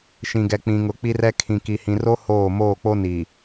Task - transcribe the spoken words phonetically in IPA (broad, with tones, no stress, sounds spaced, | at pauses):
ʃ ĩ˨ ɡ ɛ˨ k͡p ĩ˨ ŋ ʊ˨ k͡p i˦ r ɛ˦ kʰ ĩ˨ k i˨ h ĩ˨ r o˦ h oː˦˨ m oː˦˨ k͡p o˦ n i˨